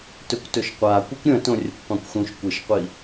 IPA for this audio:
t ɵ kʷ t ɵ ʃ qʷ aː kʷ ɨ kʷ ɾʲ ɐ̃ t õ rʲ ɐ kʷ qʷ ã kʷ x ũ ʃ kʷ ɨ ʃ qʷ i

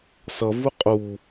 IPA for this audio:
s ʌ v u qʼ u

